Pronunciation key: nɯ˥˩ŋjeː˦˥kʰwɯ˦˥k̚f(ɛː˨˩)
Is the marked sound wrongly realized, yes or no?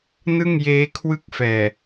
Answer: no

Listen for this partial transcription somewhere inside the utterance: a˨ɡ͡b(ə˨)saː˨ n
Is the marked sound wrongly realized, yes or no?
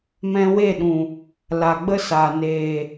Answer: yes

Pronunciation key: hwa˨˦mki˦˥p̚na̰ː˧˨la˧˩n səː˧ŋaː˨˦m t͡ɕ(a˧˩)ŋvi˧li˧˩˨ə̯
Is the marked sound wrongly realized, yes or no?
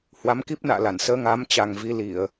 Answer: yes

